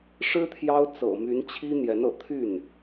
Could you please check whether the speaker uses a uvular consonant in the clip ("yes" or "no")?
no